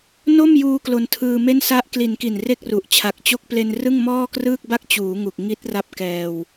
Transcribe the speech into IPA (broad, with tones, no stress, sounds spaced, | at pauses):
n o˥˩ m j uː˧ k l o˧ n tʰ ɯː˧ m e˥˩ n s a˦˥ ʔ k l i˩˦ n k i˨˩ n r e˥˩ k̚ r u˨˩ ʔ t͡ɕʰ a˨˩ k̚ t͡ɕ o˦˥ k̚ p l e˧ n r ɯ˥˩ ŋ m ɔː˥˩ k r ɯː˥˩ k̚ b a˥˩ k̚ t͡ɕ uː˩˦ ŋ u˨˩ k̚ ŋ i˦˥ t̚ r a˦˥ p̚ k ɛː˧ w